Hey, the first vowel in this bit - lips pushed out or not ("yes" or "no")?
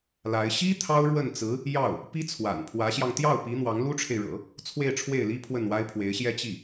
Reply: no